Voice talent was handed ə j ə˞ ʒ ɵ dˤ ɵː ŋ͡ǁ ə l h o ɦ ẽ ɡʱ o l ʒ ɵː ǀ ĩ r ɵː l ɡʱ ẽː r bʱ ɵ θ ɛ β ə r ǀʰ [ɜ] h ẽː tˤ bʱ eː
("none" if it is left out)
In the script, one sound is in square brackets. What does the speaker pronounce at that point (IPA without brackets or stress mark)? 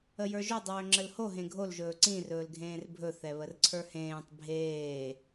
ə˞